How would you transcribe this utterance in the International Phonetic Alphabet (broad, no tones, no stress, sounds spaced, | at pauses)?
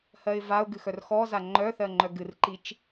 h ɜ ɪ̯ v a ʊ̯ ɡ ɨ x œ r x ɔ z a ŋ͡ǃ œ θ ɜ ŋ͡ǃ œ ɡ ɨ r ǃ i t͡ʃ